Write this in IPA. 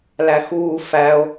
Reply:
l æ x uː f æ o̯

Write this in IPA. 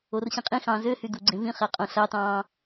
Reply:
o r ɕ ĩ qʼ ĩ x ɑ̃ː z ø h y d u ɡ͡ǀ ẽ v ĩ χ æ qʼ õ ɬ ɑ t ɑ̃ː

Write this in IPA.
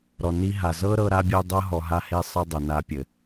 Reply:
ɾ ɔ˨ n i˦ ɦ a˨ z ɤ˦ ɾ ɤ˧ ɾ a˦ bʲ ɛ˦ dˤ ɤ˦ ɦ ɔ˨ ɦ a˧ h e˧ sˤ ɤ˦ dˤ ɛ˨ n a˧ pʲ ɘ˨

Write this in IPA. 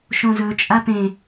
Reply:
ʃ õ z ɵ t͡ʃʼ a p ẽ

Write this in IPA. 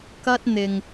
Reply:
k ɐ˧ t̚ n̪ ɪ˨ ŋ

